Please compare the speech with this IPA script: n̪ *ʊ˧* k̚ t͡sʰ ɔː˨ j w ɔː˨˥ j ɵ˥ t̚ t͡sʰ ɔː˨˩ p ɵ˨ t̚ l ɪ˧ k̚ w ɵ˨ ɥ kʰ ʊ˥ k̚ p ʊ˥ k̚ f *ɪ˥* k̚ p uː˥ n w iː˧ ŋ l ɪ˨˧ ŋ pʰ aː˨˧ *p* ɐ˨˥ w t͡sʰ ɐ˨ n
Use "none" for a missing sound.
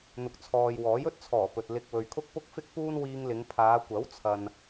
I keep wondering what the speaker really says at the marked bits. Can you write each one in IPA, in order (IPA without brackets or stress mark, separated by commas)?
ʊ˨, ɪ˥, kʷ